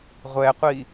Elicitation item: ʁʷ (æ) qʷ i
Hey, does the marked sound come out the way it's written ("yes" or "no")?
no